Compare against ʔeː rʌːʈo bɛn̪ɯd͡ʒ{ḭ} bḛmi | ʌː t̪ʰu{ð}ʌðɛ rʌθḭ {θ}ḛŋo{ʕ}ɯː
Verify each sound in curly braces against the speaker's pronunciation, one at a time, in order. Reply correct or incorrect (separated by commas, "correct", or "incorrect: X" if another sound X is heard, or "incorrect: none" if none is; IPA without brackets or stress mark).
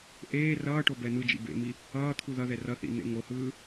correct, correct, incorrect: n̪, incorrect: h